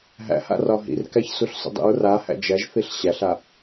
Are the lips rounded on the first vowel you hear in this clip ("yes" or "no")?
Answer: no